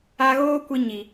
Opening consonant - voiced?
yes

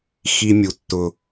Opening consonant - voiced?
no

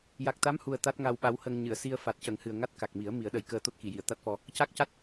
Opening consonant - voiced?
yes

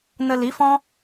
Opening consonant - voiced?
yes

